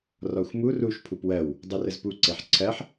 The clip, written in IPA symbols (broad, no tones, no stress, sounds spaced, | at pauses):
r ɔ xʷ m u r u ʃ pʰ u p w ɜ w | dˤ u r ə z p u ǀ e ħ ǀʰ ɜ ħ